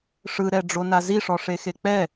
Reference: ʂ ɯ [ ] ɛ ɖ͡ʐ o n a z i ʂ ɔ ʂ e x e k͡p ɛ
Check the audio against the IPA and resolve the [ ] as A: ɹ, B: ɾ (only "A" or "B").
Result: B